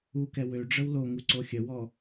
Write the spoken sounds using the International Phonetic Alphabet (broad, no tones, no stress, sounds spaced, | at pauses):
u k ɛ w ø ɖ͡ʐ ə w l o ŋ u ǀ o xʲ ə w ɔ